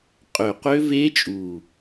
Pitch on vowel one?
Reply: low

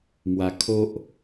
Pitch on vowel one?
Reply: low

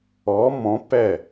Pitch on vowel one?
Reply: rising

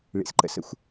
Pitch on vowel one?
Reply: low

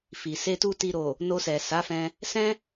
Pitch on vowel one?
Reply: low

